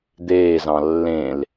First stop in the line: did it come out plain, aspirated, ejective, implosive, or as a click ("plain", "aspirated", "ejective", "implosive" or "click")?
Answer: plain